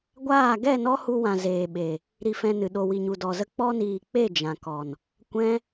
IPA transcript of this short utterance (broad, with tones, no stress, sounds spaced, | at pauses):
ɡʷ aː˦˨ ɡ ɛ˦˨ n ɔ˦ h u˧ w ã˨ z eː˨ ɓ e˨ | ɾ i˧ f ɛ̃˧ n ɨ˨ ɗ o˨ w i˨ ɲ u˨ d ɔ˨ z ə˦ k͡p ɔ˧ n iː˨ k͡p e˦˨ d͡ʒ ã˨ k ɔ˨ n | kʷ ɛ̃˦